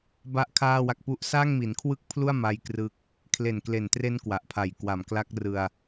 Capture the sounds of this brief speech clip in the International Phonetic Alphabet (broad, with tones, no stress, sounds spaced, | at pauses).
b a˥˩ ʔ kʰ aː˥˩ w a˦˥ k̚ p u˥˩ ʔ s a˥˩ ŋ m i˩˦ n kʰ w ɯ˥˩ k̚ pʰ l u˥˩ a̯ m a˦˥ j k r ɯ˦˥ k̚ | kʰ l e˨˩ n k l e˨˩ n t r e˦˥ n k w a˨˩ ʔ pʰ a˨˩ j k w a˨˩ m k l a˦˥ k̚ r ɯ˧ a̯